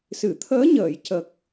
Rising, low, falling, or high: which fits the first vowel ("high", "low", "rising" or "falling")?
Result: low